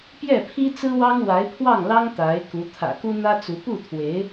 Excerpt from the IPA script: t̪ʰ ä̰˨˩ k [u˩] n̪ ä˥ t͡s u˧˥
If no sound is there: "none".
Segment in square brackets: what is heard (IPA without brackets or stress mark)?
u˥